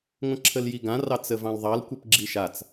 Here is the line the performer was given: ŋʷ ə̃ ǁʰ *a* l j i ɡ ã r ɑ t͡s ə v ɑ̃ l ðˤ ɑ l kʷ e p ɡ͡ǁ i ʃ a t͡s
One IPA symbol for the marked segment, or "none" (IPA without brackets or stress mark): ə